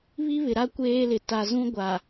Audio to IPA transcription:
β i˦ β ɪ˨ ɾ a˦ kʷ eː˦ l ɪ˨ t a˨ z ũ˦ ɡʷ a˨

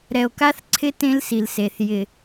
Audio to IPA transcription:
ɾ ɛ˨ o̯ k a˦ θ ǀʰ ɪ˦ t ẽ˦ l s i˨ l s e˨ θ j ɪ˨

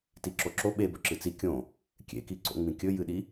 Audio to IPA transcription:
t i ǁ o ǁ o ɓ e b ɵ ǁ ɨ t͡s i kʲ õ | kʲ ḛ k i ǀ o̰ ŋ͡m ĩ kʲ ɵ j ɨ ɗ i

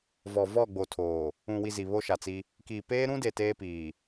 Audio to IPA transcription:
v ɔ˨ v ɔ˦˨ ɡ͡b o˨ tʰ oː˨ | ũ˨ w i˨ z i˨ β o˦ ʃ a˨ t͡s i˦ | k iː˨ p eː˦ ɾ ũ˦ d e˨ t eː˦ p iː˨

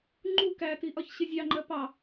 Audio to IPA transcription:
ŋ͡ǃ u k æ t i ʔ ɒ ç ɕ ɪ zʲ ɑ ŋ͡ǃ ɜ p ɑ

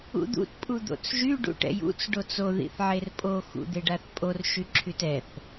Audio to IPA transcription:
ṵ d̪ ṵ t pʼ u d̪ o̰ t͡s ʒ y ɖ ṵ ʈ ɛ̰ j ṵ t͡s ɖ o t͡s o ð ḭ θ ʕ e r pʼ o x ṵ d̪ e ɖ a θ pʼ o r ʃ y ǁʰ y t ɛ θ

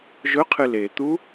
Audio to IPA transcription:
ʒ ɵ qʰ ɨ l e t̪ u

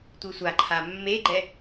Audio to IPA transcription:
tʷ ɨ sʷ a ǃʰ a mː e ɡ͡ǃ ɛ

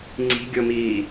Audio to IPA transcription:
ŋ͡ǀ i̤ ɡʲ o m iː

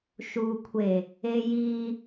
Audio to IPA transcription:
ʃ u kʷʰ e | e j i

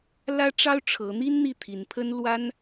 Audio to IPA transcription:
l ä˥ ʈ͡ʂ ɑ˥ ʊ̯ ʈ͡ʂʰ ɤ˧˥ n̪ i˥ n n̪ i˥˩ t̪ʰ i˧˥ n pʰ ə˥ n l w a˥ n

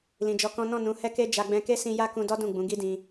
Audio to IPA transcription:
l ĩ˨ d͡ʒ ɔ˧ k ɔ̃˦ n ɔ̃˦˨ n ũ˨˦ h ɛ˦ k e˦ d͡ʒ a˧ ɡ͡b ɛ̃˧ k e˦ s ĩ˧ j a˦ k ũ˧ d ɔ˦ d ũ˦˨ ɡ͡b ũ˨˦ ɡ i˦ d ĩ˧

